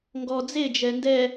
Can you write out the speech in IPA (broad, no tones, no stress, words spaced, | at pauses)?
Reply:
ŋɡɔ d͡zed͡ʒɛ ndɛ